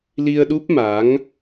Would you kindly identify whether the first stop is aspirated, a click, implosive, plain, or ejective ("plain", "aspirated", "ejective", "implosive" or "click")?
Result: implosive